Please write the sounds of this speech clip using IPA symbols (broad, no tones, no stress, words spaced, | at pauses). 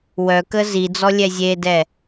wœkə zid͡zɔ lʲɛzʲedɛ